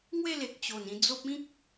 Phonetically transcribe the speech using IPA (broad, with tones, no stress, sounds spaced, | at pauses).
ŋ w e˥˧ l e˨ k̚ t͡ɕ o˨˩ n ĩ˧ d͡z o˦ p̚ ĩ˦ k̚